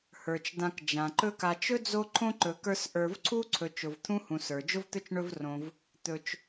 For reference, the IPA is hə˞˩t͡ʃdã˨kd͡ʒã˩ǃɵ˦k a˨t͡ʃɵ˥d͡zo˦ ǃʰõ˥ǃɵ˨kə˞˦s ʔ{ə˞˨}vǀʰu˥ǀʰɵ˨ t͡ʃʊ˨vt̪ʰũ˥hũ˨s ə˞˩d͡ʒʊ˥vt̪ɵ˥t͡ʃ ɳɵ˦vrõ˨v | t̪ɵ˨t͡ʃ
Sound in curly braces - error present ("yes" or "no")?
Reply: no